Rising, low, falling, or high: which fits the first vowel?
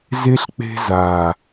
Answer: high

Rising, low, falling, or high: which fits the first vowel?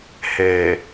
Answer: low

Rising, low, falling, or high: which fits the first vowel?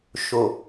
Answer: low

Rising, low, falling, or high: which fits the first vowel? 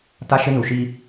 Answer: high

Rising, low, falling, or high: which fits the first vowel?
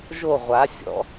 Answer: falling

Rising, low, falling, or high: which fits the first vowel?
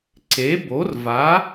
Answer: rising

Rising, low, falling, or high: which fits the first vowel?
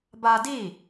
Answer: high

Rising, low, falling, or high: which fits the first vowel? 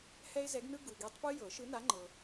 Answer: high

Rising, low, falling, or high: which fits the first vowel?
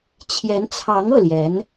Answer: rising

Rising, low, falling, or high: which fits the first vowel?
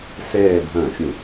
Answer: falling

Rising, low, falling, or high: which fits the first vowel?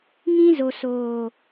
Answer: high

